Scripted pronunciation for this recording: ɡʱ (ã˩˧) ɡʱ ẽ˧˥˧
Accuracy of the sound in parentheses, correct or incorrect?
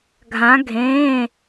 incorrect